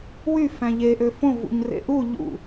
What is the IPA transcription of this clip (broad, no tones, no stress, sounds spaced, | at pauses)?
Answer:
w y f æ̃ ʎ e ʔ ø f õ v ṵ ɲ r ḛ ʔ u ʎ ṵ